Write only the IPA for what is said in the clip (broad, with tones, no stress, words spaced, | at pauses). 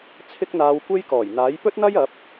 t͡sʰɪ˥k̚n̪aː˧wkʷe˥j kɔː˨˩jn̪aː˨˥jpɵ˥t̚n̪ɐ˥j ɐ˨˥p̚